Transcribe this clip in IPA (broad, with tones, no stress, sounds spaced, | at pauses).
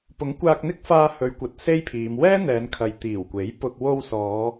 p ʊ˨˥ ŋ kʷ aː˧ k̚ n̪ ɪ˥ k̚ f aː˧ h ɵ˨˧ ɥ kʷ ɐ˨ t̚ s e˥ j pʰ iː˨˧ m w ɛː˥ n̪ ɛː˨˧ n kʰ ɐ˨ j t̪ iː˨˩ w kʷ e˨˥ j p ʊ˧ k̚ w o˧ w s ɔː˨˧